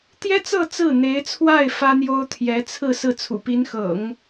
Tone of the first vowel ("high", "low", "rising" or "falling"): high